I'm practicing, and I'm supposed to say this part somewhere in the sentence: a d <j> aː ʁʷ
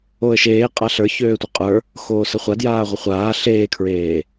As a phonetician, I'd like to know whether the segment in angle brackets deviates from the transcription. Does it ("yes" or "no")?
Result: no